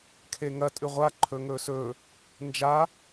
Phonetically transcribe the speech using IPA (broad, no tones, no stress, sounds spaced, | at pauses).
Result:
kʰ e ŋ ɐ tʼ ʉ ʁʷ a ǃʰ ɵ ŋ ɵː s ɵː | n d͡ʒ a